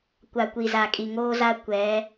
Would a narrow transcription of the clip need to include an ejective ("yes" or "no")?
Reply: yes